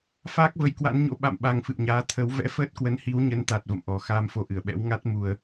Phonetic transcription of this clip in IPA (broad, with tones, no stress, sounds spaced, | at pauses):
f aː˦˥ k̚ v ə˨˦ j k w a̰˧˥ n ɲ o̰˧˥ ɓ a̰˧˨ m ɓ a˨˩ ŋ f ɨ̰˧˨ w ɲ aː˨˦ t̪ʰ ə˨˦ w v ɛ̰˧˥ f əː˦˥ t̚ k w ə˨˦ n h i˨˦ w ɲ ə˨˦ n t̪ a˨˩ t̚ v ə̰˧˨ m ʔ ɔ˨˩ x aː˧ m f o˨˦ ʔ ɨ˧˩ ə̯ ɓ ɛ̰˧˥ w ŋ a˦˥ t̚ m u˨˩ ə̯